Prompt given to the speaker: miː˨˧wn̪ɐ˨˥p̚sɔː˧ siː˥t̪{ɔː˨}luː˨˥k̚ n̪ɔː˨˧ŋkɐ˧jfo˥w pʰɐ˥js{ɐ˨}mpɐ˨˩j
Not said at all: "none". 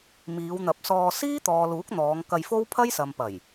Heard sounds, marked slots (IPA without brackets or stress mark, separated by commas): ɔː˨, ɐ˨